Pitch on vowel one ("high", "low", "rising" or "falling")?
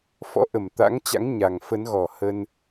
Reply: rising